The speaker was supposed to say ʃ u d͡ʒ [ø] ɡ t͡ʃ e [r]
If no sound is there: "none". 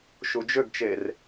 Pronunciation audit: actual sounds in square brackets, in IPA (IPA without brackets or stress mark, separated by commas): ø, r